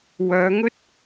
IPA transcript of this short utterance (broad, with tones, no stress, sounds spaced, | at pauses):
w œː˨˧ ŋ ɵ˥ t̚